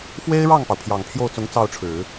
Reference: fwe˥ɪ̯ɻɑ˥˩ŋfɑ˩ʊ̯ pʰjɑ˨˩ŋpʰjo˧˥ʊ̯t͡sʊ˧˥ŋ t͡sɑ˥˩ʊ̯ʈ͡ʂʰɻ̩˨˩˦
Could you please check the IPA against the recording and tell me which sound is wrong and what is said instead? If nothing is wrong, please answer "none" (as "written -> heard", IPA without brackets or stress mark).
o˧˥ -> o˥˩